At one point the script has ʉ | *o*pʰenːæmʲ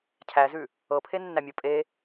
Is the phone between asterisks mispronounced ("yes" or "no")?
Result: yes